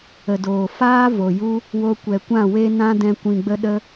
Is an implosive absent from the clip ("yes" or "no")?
no